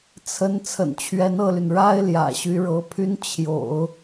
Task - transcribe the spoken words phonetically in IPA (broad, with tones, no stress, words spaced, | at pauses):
t͡sʰə˥n t͡sʰə̰˨˩nt͡ɕʰɥɛ˧˥nɤ˥˩ly˩n ɻa˥ɪ̯ ljä̰˨˩ɕy˧˥ɻɤ˧˥pʰy˥n t͡ɕʰjo̰˨˩˦ʊ̯